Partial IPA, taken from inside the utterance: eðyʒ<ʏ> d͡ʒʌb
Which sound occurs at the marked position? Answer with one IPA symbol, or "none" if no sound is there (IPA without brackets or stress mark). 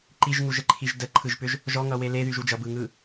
u